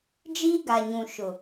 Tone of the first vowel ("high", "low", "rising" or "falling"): high